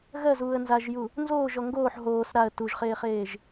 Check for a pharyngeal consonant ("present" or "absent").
present